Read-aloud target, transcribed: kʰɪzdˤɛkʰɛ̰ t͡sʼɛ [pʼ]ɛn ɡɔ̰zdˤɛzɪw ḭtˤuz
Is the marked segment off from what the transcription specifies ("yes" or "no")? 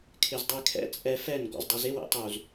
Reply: yes